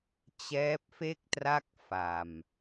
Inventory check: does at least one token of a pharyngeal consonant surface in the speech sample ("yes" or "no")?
no